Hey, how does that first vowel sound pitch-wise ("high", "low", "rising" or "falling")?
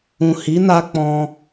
low